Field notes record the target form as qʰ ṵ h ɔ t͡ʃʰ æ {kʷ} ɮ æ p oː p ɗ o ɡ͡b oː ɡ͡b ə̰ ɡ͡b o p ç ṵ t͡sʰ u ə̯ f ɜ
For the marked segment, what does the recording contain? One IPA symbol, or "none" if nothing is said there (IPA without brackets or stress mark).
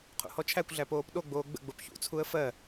kʷ